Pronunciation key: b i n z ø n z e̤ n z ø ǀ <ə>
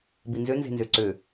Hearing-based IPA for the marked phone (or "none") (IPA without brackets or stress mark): ø